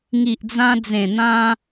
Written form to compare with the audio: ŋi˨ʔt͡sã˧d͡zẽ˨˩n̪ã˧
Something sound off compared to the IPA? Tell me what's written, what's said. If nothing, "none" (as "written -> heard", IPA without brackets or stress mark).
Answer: t͡s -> d͡z